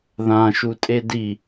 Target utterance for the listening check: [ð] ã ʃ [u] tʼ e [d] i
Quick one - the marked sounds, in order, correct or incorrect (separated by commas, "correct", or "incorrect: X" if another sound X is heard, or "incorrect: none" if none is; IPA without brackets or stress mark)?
correct, correct, correct